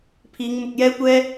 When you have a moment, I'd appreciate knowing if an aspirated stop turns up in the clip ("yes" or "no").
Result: yes